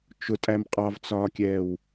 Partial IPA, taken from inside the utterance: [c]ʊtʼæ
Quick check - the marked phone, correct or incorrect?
incorrect: t͡ʃ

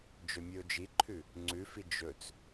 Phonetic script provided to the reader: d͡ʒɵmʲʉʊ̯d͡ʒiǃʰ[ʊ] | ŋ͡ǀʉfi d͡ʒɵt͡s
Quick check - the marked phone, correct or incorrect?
incorrect: ʉ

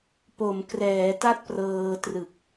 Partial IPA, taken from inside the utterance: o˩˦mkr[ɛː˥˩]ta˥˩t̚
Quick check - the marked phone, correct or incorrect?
incorrect: ɛː˩˦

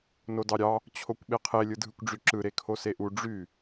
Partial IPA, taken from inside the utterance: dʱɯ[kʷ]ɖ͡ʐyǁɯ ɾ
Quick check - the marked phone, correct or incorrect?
correct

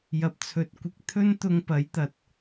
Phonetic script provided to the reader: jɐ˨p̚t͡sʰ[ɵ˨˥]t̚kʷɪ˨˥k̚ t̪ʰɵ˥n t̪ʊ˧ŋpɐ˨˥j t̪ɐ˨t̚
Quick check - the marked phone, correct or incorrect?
correct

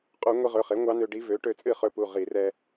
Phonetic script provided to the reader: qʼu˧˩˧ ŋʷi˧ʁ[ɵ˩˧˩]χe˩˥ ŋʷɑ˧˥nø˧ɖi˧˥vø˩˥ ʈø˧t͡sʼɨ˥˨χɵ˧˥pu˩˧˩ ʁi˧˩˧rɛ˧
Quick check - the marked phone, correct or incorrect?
correct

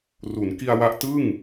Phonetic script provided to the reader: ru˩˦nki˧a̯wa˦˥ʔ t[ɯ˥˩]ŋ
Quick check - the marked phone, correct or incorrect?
correct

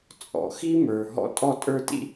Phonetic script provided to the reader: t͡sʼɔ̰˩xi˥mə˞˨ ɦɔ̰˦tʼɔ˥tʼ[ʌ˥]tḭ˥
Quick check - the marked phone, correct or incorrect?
incorrect: ə˞˥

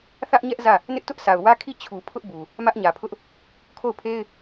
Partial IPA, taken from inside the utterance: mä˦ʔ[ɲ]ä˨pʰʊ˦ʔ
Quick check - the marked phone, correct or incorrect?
correct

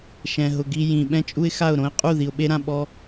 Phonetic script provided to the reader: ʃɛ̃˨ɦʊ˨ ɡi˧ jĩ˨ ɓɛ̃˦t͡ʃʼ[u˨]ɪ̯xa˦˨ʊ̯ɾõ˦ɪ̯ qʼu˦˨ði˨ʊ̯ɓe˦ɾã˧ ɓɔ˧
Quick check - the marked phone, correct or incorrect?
incorrect: u˦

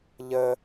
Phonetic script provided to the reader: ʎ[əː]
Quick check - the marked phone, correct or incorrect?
incorrect: ə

